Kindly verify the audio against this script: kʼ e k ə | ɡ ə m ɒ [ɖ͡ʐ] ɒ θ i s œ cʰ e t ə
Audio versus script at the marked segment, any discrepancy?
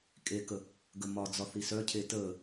yes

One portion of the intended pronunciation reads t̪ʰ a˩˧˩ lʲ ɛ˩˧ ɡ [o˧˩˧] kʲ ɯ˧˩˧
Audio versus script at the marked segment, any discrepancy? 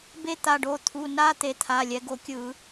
no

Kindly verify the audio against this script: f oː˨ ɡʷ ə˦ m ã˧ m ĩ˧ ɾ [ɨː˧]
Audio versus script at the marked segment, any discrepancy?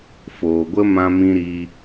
yes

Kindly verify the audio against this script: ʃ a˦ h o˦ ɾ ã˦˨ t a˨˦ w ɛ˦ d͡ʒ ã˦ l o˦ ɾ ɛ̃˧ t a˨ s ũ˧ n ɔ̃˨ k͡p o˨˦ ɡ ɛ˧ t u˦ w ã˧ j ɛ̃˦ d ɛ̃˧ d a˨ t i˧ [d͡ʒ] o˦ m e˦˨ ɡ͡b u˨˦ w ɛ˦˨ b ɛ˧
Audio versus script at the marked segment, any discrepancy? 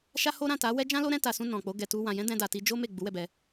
no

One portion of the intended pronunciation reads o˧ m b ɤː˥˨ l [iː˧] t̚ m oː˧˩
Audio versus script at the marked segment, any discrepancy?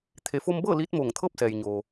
yes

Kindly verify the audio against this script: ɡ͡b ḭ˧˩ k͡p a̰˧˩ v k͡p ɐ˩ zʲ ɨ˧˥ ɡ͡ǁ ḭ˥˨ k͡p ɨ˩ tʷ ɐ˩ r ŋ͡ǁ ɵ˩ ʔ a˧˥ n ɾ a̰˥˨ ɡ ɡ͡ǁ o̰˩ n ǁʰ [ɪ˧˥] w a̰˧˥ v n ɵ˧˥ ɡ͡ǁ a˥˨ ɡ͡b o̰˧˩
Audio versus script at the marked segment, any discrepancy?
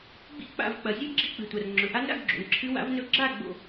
yes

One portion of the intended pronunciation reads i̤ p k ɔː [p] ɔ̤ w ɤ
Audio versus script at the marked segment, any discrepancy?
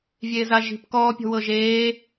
yes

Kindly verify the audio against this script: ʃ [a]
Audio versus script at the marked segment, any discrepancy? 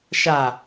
no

